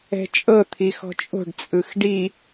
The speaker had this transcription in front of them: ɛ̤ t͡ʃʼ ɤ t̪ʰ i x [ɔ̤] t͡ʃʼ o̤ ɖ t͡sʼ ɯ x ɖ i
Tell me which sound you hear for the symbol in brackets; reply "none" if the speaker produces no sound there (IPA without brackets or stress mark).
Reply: ɔ̤